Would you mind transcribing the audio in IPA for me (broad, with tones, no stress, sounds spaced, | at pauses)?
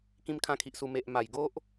k ĩ˦ m kʰ ã˥˧ kʰ i˨ ʔ s u˧ m e˨ ʔ m a˨˩ j ɡ o˦ ʔ